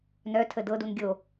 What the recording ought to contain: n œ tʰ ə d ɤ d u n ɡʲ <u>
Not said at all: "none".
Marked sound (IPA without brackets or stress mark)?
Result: o